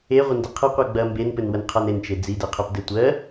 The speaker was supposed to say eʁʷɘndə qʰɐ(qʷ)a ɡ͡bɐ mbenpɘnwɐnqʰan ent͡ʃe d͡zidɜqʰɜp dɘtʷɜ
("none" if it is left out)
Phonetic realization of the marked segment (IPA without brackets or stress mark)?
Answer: qʷ